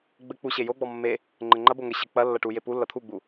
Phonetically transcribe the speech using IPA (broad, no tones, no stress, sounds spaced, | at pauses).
ɡ͡b ɘ k͡p u ɕ e j o ɡ͡b ɔ mː e | ŋ͡ǃ ɘ ŋ͡ǃ ɐ b o ŋ ɘ ɕ ɘ k͡p ɐ lː ɐ ʈ u j e p u lː ɐ t̪ʰ u ɡ͡b u